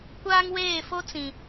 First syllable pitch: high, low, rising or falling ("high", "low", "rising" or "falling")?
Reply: high